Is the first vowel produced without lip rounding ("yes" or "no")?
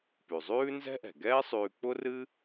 no